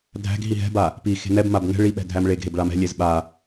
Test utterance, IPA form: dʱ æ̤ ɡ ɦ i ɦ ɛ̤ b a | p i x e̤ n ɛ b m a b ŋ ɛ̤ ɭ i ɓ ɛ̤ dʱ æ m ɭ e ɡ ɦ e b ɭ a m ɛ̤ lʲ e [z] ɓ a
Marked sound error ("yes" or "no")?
no